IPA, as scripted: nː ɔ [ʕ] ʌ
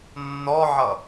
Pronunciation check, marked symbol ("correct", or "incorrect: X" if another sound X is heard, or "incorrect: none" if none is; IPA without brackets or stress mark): correct